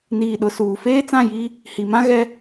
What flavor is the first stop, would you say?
implosive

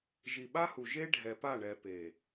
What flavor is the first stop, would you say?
implosive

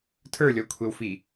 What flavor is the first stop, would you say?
aspirated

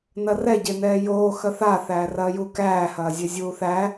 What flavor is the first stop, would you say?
plain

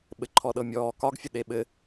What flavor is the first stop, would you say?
implosive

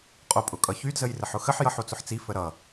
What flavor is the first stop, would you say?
ejective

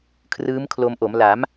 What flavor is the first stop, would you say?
aspirated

